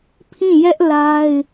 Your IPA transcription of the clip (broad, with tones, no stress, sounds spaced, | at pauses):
pʰ ĩ˦˨ j ɛ˦ ʔ l a˦ ɪ̯